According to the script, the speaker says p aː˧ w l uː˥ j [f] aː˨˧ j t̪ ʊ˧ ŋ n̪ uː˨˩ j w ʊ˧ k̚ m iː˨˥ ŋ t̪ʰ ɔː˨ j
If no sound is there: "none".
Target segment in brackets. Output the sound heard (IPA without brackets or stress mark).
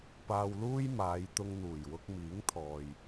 m